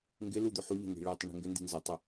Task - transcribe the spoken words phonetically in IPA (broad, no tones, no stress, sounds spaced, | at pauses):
ŋ ɡ ɪ l u d̪ ʏ ħ u ʎ ə̤ n i̤ ɭ ɪ tˤ ə ɳ i̤ ŋ ɡ ʏ n d i̤ n z ə tˤ ʏ